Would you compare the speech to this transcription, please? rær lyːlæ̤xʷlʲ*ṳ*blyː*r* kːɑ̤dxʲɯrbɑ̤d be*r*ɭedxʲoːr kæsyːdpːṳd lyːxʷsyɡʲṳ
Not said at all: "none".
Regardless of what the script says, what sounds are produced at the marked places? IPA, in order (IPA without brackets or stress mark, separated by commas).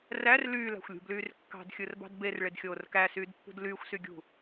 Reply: ṳ, r, r